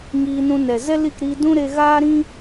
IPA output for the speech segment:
ŋ iː˧ n ũ˧ n ɛ˨ z ɛ˦ l i˦˨ k ɾ iː˧ d ũ˦ ɾ e˧ ɣ aː˦ ɾ ĩ˦

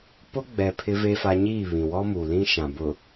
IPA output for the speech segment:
p ʊ˦ ɡ͡b ɛ˨ pʰ ɪ˦ v e˦ f a˦ ɲ iː˦˨ β ĩ˨ w ɔ˦ m uː˨ l ĩ˦ ʃ ã˨ b ʊ˨

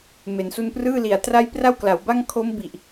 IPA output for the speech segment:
m e˩˦ n s u˧ n p r ɯː˥˩ l i˨˩ a̯ t r a˥˩ j p r a˥˩ w k l a˩˦ w b a˥˩ ŋ kʰ o˦˥ m b i˨˩ ʔ

